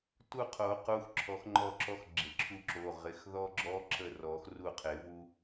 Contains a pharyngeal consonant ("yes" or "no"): no